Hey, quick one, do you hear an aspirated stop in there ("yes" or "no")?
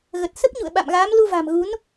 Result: no